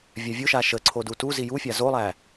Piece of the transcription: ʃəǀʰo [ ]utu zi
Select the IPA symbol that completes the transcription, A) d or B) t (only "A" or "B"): A